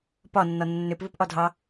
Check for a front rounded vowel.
present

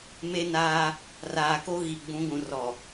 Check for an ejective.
absent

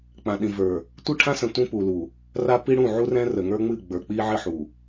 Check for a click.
absent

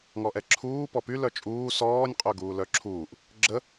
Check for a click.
present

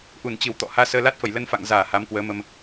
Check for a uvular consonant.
absent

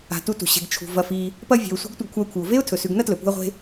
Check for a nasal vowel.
absent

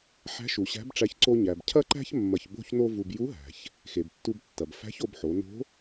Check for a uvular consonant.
absent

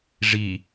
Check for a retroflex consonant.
present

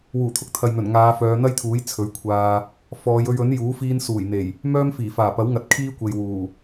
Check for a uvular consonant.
absent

